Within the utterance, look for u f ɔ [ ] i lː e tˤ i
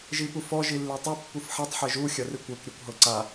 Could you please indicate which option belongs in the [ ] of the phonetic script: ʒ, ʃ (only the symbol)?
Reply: ʒ